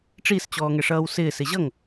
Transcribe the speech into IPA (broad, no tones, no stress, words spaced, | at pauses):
ʈ͡ʂist͡ɕɔː ŋɛʂʌːwsɪː sɪʑʌŋ